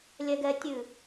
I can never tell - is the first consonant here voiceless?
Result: no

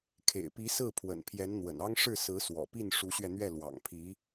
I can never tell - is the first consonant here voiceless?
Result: yes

